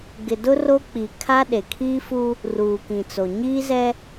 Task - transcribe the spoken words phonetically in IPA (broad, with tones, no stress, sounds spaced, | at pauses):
ɡ ɪ˨ d ʊ˦ r o˦ k͡p i˨ kʰ a˦ ɗ e˨ kʰ iː˦ f u˦ | r uː˨ k ĩ˨ t͡s o˨ ɲ iː˦ z ɛ˦